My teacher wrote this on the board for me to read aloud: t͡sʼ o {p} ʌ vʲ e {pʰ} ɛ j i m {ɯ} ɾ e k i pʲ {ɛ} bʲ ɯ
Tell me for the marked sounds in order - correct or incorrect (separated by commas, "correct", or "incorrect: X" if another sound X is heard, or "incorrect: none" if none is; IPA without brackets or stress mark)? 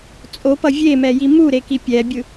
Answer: correct, incorrect: m, incorrect: u, correct